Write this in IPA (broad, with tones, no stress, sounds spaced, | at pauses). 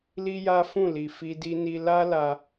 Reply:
l i˦ j a˦ f ũ˦˨ l i˨ f i˧ d i˧ n i˧ l a˦ l a˧